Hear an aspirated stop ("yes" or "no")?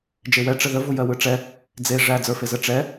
no